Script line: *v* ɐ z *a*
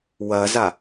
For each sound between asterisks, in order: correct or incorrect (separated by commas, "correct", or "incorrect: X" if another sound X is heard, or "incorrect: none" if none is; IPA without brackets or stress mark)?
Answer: incorrect: w, correct